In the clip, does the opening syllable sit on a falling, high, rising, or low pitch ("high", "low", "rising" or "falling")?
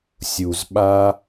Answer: low